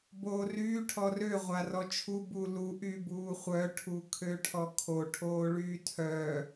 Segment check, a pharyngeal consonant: absent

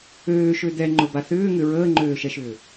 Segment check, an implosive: absent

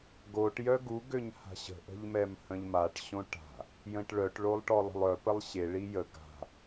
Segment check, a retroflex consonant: present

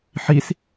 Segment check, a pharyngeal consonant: present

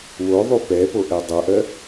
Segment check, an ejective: absent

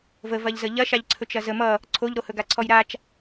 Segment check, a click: present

